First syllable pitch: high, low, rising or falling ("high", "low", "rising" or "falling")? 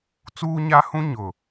high